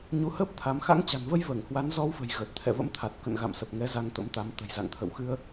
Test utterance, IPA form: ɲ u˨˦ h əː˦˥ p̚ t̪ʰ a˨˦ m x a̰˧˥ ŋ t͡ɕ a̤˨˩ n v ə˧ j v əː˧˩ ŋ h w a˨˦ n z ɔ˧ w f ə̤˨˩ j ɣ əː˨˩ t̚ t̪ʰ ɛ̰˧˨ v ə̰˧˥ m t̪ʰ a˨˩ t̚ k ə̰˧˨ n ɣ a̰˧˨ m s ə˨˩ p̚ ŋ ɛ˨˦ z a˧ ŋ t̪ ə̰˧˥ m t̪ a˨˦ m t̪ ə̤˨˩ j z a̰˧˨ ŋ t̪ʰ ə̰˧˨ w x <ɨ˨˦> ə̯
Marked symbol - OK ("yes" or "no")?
no